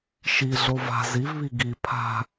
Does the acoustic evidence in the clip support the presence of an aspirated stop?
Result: yes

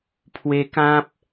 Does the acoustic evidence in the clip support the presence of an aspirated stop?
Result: yes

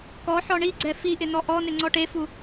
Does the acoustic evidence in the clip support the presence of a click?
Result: yes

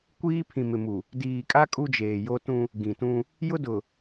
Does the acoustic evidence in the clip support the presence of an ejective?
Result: yes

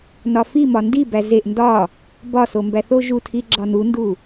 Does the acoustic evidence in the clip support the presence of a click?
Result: yes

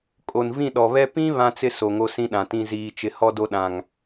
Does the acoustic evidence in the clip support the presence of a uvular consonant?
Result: no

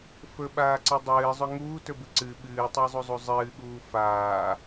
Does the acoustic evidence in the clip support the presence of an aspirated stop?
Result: no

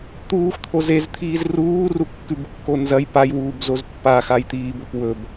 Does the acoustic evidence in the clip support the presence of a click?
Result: no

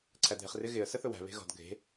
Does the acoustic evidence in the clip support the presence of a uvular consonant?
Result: yes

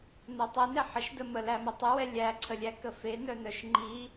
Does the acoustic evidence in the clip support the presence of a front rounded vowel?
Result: yes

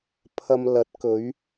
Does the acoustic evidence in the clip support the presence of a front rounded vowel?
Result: no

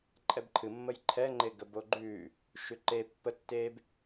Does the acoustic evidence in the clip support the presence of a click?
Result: yes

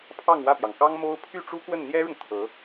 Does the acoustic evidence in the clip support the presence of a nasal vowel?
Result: no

